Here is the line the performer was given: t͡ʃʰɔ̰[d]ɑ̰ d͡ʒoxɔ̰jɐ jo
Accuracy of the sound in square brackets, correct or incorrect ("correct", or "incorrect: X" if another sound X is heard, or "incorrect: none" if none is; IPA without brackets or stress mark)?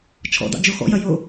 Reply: correct